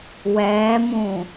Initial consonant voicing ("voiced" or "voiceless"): voiced